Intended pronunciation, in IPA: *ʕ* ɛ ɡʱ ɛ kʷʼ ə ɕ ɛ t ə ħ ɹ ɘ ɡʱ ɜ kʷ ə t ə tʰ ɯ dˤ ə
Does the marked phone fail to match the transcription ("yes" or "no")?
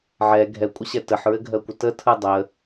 no